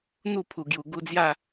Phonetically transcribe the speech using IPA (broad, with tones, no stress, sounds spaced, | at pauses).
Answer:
n̪ u˥˧ pʰ u˨˩ ɡ j u˨˩ ɡ u˧ d͡z j a˥˧